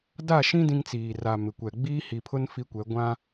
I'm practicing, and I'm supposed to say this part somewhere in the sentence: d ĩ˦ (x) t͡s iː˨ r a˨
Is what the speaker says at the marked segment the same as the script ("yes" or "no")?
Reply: no